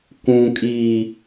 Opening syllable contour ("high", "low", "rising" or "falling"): low